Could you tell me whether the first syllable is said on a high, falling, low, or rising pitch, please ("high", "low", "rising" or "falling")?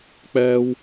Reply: high